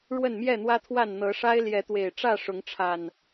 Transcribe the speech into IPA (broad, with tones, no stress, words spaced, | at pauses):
ɻwə˥˨nmjɛ˥˨n̪wä˦t̪ʰwa˥˨n n̪ɤ˨˦ʂa˦ɪ̯ ljɛ˨˦t̪we˨˩ɪ̯ ʈ͡ʂä˥˨ ʂʊ˨˦ŋʈ͡ʂʰa˨˩n